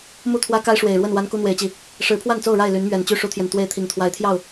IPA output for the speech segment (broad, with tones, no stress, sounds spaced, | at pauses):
m u˥˨ t̪ʰ w ä˦ k a˦ ɪ̯ ʂ w e˨˩ ɪ̯ ɻ w ə˥˨ n w a˦ n k u˦ n̪ w e˨˦ ɪ̯ t͡ɕ i˨˩ | ʂ ɻ̩˨˦ pʰ w a˥˨ n t͡s o˥˨ ʊ̯ ɻ a˥˨ ɪ̯ l y˨˦ n m ɥ ɛ˨˩ n t͡ɕ y˥˨ ʂ u˦ t̪ʰ j ɛ˨ n t̪ w e˥˨ ɪ̯ t̪ʰ i˨˩ ŋ t̪ʰ w a˨˦ ɪ̯ t̪ʰ j ɑ˥˨ ʊ̯